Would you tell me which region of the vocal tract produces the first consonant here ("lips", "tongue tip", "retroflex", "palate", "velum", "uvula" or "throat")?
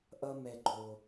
throat